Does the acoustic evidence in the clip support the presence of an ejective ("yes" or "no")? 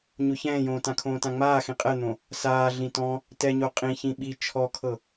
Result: yes